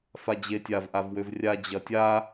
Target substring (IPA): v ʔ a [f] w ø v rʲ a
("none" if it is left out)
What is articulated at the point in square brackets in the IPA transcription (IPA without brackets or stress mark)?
v